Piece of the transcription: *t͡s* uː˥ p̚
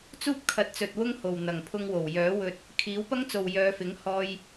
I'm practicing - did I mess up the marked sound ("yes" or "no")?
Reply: no